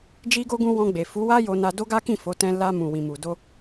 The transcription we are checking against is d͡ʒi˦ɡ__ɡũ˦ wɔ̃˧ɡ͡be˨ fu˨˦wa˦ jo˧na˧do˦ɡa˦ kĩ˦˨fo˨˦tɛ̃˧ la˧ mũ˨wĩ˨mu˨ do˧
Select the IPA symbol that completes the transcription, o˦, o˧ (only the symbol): o˦